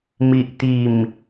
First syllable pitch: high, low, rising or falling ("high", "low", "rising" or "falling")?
low